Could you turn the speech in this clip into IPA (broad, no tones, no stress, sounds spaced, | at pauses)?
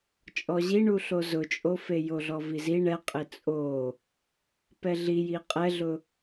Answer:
t͡ʃʼ ɔ ʑ i ɳ u ɬ o z ʊ t͡ʃʼ o f e j o ɮ ɔ v i z i ɳ ɛ qʼ ɪ t͡sʼ o | p ɛ ɮ i j i qʼ ɛ ɮ ʊ